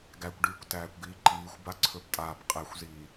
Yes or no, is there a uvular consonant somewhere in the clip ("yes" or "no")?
yes